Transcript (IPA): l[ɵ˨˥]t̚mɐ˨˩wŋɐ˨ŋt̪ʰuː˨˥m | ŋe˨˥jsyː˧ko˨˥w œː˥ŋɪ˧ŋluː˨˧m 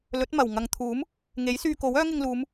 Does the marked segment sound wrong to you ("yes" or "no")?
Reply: no